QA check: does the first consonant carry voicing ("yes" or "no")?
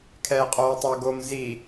no